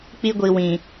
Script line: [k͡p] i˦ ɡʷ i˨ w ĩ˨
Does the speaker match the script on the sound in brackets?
yes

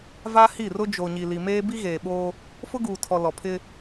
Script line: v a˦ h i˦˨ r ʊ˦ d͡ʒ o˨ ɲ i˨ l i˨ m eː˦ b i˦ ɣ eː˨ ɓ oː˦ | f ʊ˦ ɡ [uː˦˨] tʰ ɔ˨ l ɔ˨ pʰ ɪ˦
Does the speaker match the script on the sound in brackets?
no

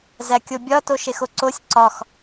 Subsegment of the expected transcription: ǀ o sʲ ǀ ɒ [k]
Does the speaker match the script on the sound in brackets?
no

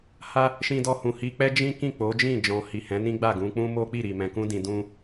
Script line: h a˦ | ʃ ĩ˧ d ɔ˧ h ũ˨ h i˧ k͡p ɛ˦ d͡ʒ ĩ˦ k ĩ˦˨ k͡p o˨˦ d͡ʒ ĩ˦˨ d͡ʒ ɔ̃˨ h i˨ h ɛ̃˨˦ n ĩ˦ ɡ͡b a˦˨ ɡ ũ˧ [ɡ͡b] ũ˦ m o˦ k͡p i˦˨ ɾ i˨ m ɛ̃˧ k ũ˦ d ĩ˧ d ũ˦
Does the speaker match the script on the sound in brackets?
no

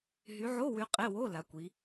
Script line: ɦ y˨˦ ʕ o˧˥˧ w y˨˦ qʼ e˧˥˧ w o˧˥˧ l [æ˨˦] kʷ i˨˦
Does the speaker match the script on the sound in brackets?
no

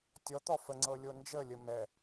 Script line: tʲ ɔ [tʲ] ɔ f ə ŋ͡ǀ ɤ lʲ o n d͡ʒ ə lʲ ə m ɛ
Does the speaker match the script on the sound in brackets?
no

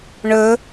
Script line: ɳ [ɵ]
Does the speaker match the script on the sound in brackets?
yes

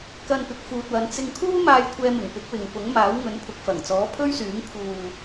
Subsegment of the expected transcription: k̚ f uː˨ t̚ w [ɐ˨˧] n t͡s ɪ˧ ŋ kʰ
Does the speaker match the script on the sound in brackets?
yes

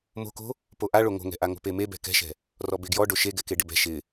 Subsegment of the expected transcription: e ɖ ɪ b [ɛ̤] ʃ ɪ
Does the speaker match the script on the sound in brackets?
yes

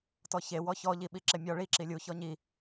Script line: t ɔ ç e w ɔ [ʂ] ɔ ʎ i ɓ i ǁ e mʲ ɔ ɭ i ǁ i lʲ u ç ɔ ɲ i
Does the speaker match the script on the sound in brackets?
no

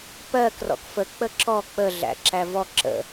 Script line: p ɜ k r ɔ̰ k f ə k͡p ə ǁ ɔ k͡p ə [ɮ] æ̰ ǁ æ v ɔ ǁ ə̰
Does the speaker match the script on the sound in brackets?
yes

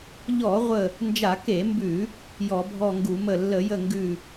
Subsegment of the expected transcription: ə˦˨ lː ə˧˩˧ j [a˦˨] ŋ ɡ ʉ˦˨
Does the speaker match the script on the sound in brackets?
no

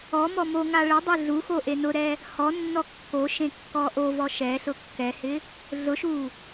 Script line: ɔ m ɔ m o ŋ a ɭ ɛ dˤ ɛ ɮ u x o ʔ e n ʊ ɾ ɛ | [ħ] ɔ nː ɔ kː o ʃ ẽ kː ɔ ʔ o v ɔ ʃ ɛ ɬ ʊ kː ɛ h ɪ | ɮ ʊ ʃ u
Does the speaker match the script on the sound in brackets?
no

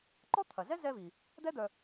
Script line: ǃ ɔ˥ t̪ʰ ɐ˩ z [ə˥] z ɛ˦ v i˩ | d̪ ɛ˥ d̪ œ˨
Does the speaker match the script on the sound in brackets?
no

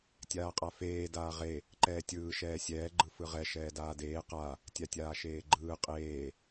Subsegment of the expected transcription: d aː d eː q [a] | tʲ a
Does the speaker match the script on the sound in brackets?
yes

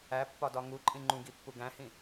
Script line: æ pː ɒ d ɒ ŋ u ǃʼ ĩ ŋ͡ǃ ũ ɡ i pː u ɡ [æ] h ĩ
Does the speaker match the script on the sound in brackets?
no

